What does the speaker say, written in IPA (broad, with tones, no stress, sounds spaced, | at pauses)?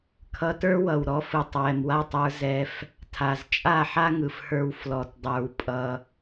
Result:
kʰ ʌ˧ t ə˞˦ w ʌ˨ w ɾ ɔ˧ f ɯ˨ tˤ w ɛ˨ m w a˦˨ tˤ ə˞˧ z ɛ˧ f | tʰ a˨ z t͡ʃʼ a˦˨ ħ a˦ ŋ ɯ˨ f h ə˞˧ w f l ɔ˨ t dˤ ə˞˧ w pʼ ʌ˧